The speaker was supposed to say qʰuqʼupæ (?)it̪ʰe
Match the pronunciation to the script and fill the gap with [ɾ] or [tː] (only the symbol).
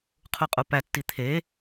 tː